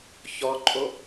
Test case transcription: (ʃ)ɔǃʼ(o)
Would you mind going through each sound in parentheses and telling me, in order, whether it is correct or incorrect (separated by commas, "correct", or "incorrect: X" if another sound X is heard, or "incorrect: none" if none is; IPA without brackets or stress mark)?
incorrect: ç, correct